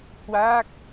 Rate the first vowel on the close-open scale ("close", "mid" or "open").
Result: open